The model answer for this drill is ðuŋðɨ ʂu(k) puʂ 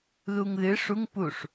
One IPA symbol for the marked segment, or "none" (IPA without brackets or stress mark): ŋ